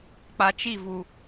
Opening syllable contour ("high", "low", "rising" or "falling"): low